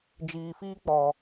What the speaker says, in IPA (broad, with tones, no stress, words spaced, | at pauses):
d͡ʒiː˨fiː˦k͡pɔ˨